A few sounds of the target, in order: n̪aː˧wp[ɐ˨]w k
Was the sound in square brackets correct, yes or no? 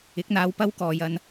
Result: no